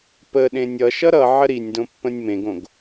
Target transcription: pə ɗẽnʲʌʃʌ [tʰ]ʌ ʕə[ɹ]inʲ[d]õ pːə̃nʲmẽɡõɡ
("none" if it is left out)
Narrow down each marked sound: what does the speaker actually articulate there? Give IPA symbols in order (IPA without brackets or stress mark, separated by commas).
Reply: ɾ, ɾ, d